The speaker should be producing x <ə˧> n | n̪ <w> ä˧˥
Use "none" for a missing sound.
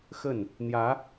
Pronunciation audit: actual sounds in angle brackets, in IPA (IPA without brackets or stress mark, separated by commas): ə˥˩, j